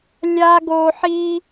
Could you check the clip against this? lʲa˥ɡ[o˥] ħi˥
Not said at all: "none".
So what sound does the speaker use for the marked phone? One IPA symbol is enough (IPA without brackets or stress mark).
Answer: o˥